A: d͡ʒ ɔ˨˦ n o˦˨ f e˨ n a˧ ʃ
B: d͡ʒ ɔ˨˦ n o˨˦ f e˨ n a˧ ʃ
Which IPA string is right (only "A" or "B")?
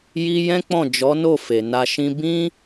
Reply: A